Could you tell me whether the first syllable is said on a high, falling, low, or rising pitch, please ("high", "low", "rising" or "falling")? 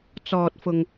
low